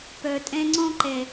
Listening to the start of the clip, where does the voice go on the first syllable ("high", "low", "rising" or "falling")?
low